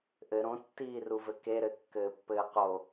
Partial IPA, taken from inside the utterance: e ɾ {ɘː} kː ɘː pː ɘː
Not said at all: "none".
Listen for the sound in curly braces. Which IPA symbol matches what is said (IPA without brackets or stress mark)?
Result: ɘ